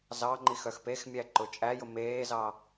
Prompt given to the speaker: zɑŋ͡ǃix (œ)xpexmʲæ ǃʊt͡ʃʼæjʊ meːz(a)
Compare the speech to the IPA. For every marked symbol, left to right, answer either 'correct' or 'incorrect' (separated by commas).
correct, incorrect